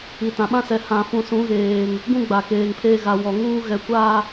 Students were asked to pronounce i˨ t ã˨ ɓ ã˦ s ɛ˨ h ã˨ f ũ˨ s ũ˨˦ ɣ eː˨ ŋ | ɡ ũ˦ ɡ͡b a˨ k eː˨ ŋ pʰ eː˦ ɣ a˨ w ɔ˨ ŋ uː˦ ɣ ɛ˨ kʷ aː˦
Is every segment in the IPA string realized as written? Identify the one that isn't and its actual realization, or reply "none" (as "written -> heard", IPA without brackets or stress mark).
none